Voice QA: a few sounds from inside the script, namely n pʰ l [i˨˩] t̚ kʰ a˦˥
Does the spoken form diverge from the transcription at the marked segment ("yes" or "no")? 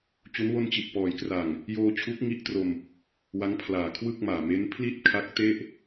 yes